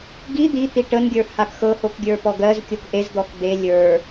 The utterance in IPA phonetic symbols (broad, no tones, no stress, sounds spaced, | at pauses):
ɡ i d̪ i t̪ i ʈ ə n ɡʲ ə˞ h a k x ɤ h o k ɡʲ ə˞ p ɔ ɡ ɜ z kʲ o k ʔ e z d̪ ɔ k d̪ e lʲ ə˞